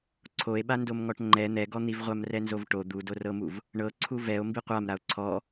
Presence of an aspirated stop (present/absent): present